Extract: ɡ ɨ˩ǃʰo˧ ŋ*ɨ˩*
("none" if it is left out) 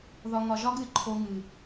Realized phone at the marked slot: ɨ˩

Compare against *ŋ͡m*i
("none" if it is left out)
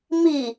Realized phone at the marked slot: m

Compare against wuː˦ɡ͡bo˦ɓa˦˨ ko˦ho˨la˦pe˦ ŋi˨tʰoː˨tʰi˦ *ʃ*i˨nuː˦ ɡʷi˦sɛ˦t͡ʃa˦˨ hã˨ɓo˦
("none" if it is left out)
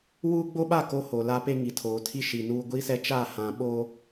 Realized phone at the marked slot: ʃ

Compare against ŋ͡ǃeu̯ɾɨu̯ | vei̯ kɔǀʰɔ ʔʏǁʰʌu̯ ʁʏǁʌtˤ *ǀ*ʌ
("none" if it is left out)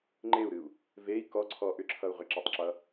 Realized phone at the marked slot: ǁ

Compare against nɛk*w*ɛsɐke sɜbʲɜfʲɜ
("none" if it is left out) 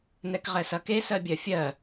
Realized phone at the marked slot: ʁ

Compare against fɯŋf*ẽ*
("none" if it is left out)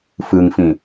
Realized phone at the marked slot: ĩ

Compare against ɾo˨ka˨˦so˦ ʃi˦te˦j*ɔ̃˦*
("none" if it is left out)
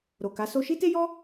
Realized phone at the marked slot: ɔ˦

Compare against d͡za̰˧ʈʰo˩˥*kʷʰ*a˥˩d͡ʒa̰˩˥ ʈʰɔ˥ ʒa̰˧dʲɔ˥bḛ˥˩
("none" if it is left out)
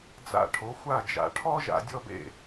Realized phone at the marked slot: xʷ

